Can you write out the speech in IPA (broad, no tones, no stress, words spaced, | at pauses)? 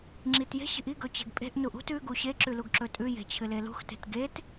ŋ͡ǁitje̤ɕi̤ʔ iɡɵ t͡ɕe̤ɡpʼe̤ʔnuʔ ṳt ʉ ɡuɕeǁʉ luɡǁɵtʼʉje̤ t͡ɕʰɨlelṳxte̤t ɡet